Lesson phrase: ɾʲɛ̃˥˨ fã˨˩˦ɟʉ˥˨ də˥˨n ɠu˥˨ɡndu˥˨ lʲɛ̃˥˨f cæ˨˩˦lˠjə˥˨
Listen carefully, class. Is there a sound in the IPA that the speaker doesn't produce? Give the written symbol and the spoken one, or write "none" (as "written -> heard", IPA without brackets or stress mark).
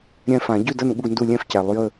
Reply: none